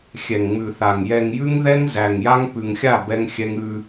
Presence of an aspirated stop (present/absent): absent